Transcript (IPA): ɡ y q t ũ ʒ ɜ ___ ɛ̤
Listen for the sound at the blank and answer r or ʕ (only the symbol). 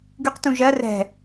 r